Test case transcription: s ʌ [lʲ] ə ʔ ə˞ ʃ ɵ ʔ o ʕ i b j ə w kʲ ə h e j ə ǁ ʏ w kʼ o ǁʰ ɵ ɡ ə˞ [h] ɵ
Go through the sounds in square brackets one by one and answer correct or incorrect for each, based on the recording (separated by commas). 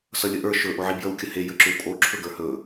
correct, correct